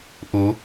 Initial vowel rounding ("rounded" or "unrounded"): rounded